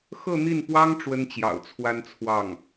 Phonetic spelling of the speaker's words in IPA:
x ɤ˥˧ n̪ i˥˩ n p w ɑ˥ ŋ ʈ͡ʂ w ə˥ n t͡ɕ j ɑ̰˨˩ ʊ̯ t͡sʰ w a˥ n t͡sʰ w ɑ˥˩ ŋ

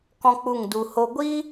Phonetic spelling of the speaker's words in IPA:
k ɔ̃˦ k͡p u˦˨ ŋ d u˧ h o˧ ɡʷ iː˦

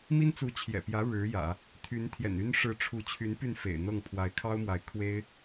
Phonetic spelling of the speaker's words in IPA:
m i˥ n t͡s u˧˥ t͡ɕʰ j ɛ̰˨˩ p j ä˧˥ ɻ ɻ̩˧˥ j ä̰˨˩˦ | t̪ʰ y˧˥ n t̪ʰ j ɛ̰˨˩ n y˥ n ʂ ɻ̩˧˥ ʈ͡ʂʰ u˧˥ t͡ɕʰ y˧˥ n p y˥˩ n f ḛ˨˩ ɪ̯ n̪ ɤ˥˩ ŋ pʰ w a˧˥ ɪ̯ kʰ ɑ˥ ʊ̯ m w a˧˥ ɪ̯ kʰ w e˥ ɪ̯

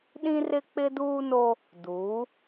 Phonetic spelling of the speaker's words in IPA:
ɗ ĩ˦ r ɪ˦ k͡p ɪ˦ d uː˦ n o˦ | d u˨˦

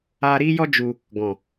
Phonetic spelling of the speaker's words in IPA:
aː˧ ɾ iː˦ j ɔ˦ d͡ʒ u˧ | ɡ ɔ̃˨

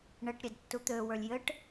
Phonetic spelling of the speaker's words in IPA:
ɳ ɘ ʈ ɾʲ e d tː u t̪ ø w ə˞ lʲ j ɘ ʈ

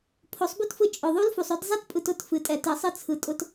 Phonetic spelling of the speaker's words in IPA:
pʰ o˨˦ sˤ b u˦ t f ɯ˧ t͡ʃʼ ʊ˨ ðˤ u˦ l f u˨ sˤ ʊ˦ d zˤ ɛ˦ t pʼ ɯ˧ t ʊ˨˦ t f ɨ˨˦ tʼ ɛ˨˦ t ɨ˨ sˤ ɨ˦ t͡sʰ ɯ˨ tʼ ʊ˧ t

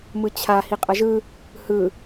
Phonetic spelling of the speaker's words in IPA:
m ɯ t͡ɕʰ a h i qʼ ʌ ʒ ɯ | h ɯ

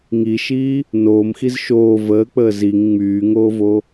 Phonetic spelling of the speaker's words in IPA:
ŋ i ʃ iː | n oː m x i z ʃ oː v əː k͡p əː z i ŋ ŋ͡m yː ŋ oː v o

